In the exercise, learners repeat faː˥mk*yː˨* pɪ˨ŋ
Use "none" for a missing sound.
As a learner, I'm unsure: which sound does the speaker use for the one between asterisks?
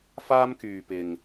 yː˨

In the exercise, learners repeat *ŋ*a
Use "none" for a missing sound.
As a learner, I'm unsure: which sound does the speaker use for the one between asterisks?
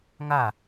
ŋ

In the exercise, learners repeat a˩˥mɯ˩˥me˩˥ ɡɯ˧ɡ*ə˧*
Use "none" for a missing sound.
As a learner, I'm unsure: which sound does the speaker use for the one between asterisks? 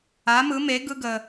ə˩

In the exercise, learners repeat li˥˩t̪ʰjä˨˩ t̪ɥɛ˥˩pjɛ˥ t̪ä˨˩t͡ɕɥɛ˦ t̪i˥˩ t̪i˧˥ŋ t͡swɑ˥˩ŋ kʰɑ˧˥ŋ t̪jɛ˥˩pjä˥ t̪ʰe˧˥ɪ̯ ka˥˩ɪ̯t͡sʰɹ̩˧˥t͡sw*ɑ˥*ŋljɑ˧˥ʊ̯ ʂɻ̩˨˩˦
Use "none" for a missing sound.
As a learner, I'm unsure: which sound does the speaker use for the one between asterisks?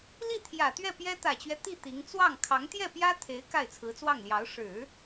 ɑ˥˩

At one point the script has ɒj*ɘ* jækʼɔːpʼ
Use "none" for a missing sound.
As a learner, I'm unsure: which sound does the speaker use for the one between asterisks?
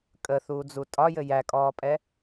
ɘ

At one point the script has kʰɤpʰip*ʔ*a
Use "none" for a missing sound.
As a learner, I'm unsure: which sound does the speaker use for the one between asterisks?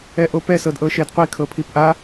ʔ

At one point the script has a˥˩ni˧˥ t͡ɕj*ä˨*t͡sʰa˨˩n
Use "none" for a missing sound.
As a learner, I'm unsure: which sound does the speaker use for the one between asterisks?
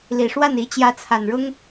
ä˧˥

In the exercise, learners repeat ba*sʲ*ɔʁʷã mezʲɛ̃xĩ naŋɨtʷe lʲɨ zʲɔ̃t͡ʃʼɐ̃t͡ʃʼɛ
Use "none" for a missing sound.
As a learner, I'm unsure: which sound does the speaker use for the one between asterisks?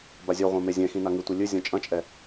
zʲ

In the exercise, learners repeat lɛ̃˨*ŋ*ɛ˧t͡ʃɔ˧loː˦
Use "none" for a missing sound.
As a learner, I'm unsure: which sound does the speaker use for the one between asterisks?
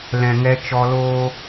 ŋ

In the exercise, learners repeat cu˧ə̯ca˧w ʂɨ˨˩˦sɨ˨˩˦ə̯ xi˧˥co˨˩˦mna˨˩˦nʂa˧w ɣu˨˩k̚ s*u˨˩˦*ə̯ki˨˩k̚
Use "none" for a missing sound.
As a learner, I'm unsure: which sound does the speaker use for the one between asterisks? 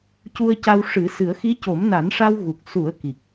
u˨˩˦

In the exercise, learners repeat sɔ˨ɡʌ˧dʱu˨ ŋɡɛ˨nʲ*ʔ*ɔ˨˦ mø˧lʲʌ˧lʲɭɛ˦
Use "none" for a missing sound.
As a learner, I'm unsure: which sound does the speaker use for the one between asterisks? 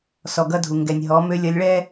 ɦ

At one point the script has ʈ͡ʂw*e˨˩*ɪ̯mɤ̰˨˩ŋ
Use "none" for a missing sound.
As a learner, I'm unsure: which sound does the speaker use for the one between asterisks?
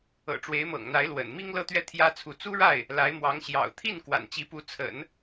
e˧˥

